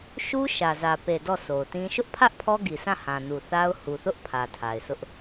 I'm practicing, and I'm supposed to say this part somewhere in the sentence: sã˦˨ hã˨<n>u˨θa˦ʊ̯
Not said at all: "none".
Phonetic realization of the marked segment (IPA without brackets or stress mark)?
n